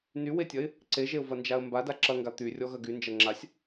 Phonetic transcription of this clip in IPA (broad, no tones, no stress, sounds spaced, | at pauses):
n y w e tʲ ɐ ɪ̯ | ǀ e ʒ e ʊ̯ v ɐ n d͡ʒ a ə̯ m b a d a ǁ ɐ ŋ ɡ a t̪ y rʲ ɔ ɣ ɐ ɡ y n d͡ʒ ɐ ŋ͡ǁ a sʲ